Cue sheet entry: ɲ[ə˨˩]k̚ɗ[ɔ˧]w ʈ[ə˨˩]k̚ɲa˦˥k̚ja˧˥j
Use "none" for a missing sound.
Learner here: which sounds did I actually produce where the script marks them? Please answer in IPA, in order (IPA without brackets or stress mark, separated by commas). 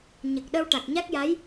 ə˨˩, ə˧, a˨˩